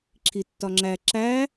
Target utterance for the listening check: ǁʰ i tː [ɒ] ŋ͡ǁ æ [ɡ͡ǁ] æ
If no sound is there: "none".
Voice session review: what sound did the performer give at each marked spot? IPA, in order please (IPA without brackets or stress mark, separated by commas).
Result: ɒ, ǁ